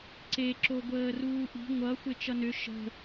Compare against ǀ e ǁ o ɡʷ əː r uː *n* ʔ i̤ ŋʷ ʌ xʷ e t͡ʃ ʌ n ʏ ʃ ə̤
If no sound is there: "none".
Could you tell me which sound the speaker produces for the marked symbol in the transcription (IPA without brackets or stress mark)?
none